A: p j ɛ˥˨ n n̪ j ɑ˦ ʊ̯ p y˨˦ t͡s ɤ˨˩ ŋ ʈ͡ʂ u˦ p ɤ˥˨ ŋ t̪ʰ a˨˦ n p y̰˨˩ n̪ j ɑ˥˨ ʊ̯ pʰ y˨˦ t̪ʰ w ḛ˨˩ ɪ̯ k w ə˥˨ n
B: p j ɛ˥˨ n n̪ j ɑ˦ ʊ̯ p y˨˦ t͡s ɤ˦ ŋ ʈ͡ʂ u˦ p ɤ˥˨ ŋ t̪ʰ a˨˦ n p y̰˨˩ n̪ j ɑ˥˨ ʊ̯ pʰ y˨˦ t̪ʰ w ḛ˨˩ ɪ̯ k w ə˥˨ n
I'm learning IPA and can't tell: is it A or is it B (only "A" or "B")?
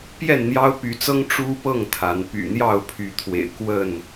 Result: B